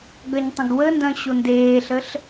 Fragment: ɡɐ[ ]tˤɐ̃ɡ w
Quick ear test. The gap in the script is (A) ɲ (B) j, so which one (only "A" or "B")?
A